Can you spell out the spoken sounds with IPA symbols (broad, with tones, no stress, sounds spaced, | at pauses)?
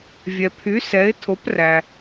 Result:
vʲ ɛ˩ pʰ y˩˥ s ɛ˩˥ ɪ̯ tʰ o˩˥ p r æ˩